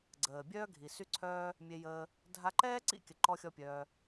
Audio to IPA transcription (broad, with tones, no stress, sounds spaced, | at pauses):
ɡ͡ǀ əː˨ bʲ œː˦ ɡʱ i˨ s y˦ ǀʰ œː˦ | mʲ e˧ j əː˧ | dʱ a˧ ǃ ɛː˦ ǀ ḭ˦ kʲ ə˨ ǃ ɔ˦ xʲ ɔ˦ pʲ œː˧